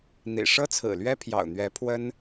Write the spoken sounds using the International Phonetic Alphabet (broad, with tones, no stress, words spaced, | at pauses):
n̪ḭ˨˩ ʂɤ˥t͡sʰɹ̩˨˩lɥɛ˥ pʰjɑ̰˨˩ʊ̯n̪ɥɛ˧˥ pʰwə˥n